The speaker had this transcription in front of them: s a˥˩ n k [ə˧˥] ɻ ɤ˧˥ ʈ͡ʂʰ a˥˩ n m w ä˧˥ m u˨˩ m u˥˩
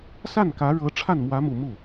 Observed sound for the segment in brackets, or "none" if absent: ä˧˥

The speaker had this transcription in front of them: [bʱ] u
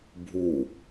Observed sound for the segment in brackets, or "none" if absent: bʱ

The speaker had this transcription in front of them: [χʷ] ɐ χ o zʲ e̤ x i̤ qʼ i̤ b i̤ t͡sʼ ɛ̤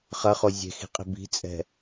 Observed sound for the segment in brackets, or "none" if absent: χ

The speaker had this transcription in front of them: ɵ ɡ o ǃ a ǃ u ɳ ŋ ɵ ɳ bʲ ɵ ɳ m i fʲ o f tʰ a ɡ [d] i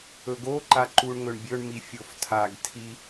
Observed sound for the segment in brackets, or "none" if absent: tʰ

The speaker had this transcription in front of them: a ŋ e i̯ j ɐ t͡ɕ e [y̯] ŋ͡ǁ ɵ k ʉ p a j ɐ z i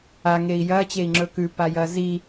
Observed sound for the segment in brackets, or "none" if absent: i̯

